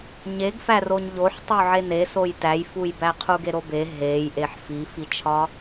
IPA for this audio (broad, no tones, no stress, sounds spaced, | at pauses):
ɲ e ɡ f æ r o ɲ ʎ o ħ tˤ u ʕ e n e s o j t æ j f u j b æ qʰ u ɡ e ɾ o b e ɦ e j ʔ e ħ f i f i t͡ʃʰ ɒ